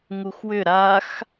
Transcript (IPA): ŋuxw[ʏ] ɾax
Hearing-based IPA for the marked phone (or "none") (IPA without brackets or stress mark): ʏ